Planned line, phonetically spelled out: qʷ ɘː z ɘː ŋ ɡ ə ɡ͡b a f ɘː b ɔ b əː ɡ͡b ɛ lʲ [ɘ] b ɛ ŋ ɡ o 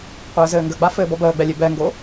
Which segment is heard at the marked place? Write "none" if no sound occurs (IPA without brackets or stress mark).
e